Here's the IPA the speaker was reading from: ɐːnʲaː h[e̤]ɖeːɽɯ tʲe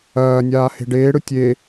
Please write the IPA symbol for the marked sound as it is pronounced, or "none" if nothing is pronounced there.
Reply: e̤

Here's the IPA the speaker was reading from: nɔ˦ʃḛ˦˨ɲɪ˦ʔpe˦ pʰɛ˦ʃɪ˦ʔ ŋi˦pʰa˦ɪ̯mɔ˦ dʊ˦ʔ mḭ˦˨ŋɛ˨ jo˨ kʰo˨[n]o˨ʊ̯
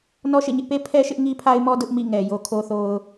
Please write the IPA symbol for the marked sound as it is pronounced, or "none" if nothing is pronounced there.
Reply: θ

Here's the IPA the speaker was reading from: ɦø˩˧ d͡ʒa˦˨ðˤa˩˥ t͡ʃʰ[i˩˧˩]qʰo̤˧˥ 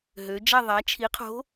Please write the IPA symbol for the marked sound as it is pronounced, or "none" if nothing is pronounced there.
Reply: i˩˥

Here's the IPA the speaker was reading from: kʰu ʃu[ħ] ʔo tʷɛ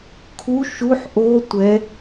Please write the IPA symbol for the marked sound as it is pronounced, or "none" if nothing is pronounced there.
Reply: ħ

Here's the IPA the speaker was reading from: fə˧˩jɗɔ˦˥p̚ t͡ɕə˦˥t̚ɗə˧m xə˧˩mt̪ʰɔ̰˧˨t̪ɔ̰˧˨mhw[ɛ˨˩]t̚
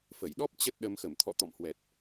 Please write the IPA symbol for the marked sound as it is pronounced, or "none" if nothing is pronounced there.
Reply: ɛ˨˩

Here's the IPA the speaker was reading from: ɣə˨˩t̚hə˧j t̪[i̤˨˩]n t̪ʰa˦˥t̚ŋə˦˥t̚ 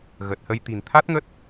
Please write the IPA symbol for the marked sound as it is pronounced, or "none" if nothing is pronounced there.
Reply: i̤˨˩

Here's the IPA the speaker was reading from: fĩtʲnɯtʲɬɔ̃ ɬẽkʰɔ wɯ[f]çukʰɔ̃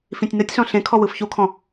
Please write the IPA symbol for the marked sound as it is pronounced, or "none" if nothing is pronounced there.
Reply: f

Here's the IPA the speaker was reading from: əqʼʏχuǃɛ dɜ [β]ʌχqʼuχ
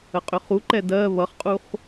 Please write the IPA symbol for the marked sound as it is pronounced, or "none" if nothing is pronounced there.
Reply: β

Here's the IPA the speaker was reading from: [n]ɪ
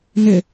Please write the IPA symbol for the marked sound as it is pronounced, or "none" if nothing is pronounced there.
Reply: n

